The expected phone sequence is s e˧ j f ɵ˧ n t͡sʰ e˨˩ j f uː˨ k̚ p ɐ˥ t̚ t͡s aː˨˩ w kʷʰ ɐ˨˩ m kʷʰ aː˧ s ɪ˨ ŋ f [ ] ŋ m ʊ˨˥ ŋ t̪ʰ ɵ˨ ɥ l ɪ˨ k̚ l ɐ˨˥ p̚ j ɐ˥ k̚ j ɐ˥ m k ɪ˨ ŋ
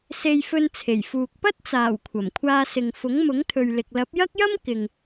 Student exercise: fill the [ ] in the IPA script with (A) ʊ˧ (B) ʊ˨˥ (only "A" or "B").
B